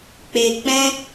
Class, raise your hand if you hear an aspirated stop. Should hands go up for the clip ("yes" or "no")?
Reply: no